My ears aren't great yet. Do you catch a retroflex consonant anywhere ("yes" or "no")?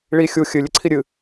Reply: yes